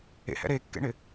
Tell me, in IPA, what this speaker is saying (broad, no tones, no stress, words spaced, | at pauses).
ḛhɛ̰ ɾekːḛɳɪ